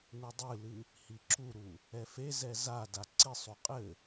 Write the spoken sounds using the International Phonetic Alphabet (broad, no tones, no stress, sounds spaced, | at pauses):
n u dˤ ɨ l ɨ | h i ǁ u ɾ u | ɛ f e z ɛ z a d a ǀ i sˤ u qʼ ɘ